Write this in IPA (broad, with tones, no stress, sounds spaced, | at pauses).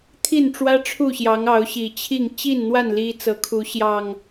t̪ʰ i˥˨ n ʈ͡ʂ w ä˦ ʈ͡ʂʰ u˥˨ ɕ j ɑ˨˦ ŋ ɑ˨˦ ʊ̯ ɕ i˨˩ t͡ɕʰ i˥˨ ŋ t͡ɕ i˥˨ n n̪ w a˥˨ n l i˦ t͡s ɤ˨˦ kʰ u˨˦ ɕ j ɑ˨˩ ŋ